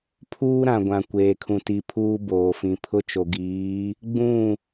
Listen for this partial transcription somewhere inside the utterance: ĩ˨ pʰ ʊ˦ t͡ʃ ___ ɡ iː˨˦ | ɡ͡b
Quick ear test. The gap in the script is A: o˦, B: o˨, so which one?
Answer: B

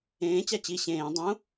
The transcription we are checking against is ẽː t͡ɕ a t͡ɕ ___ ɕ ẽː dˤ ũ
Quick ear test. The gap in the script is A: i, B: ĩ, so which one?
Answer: A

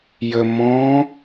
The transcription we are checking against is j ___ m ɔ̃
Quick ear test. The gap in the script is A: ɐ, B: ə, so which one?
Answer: B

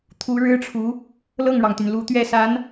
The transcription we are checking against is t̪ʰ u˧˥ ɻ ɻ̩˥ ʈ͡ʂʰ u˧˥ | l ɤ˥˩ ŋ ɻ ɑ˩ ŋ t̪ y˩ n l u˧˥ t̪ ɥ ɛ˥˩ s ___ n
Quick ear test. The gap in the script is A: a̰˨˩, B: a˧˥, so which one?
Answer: B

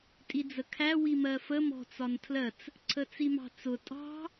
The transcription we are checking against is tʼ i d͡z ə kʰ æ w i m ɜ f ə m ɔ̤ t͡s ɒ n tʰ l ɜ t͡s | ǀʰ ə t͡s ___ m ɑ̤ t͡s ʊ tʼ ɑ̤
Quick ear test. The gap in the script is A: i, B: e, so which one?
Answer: A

